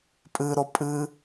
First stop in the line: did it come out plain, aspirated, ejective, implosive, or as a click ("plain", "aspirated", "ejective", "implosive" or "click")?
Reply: ejective